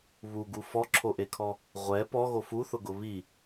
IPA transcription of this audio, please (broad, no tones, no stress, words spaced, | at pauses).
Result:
βuɡu fɔǁʰoʔekʰɔ | ʁʷɛ pɔɣo fuθʊɡʊ βi